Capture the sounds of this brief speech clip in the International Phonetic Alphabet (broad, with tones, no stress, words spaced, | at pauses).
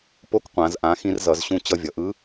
po˧˥kqʷã˩˧z ʔã˩˧ xĩ˧rzʌ˩˧zɕũ˧ t͡ɕʌ˧vʲʌ˩ʔɯ˧˥